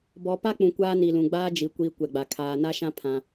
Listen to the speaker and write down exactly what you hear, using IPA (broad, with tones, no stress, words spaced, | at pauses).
bɔ˨pa˦k͡pũ˨ kʷaː˦ni˨lũ˨ ɡ͡baː˦d͡ʒi˨kʷiː˨ kʷɛ˨ɡ͡ba˨ kʰaː˨na˦ʃã˦ pʰã˦